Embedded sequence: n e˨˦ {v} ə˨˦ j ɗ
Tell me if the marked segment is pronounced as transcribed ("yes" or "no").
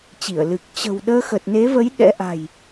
yes